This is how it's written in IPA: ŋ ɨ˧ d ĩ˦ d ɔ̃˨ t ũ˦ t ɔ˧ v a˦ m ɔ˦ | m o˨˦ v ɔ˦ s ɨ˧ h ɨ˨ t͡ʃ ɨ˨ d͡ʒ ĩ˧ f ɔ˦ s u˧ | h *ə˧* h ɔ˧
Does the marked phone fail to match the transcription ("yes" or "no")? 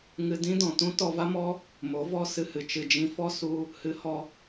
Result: yes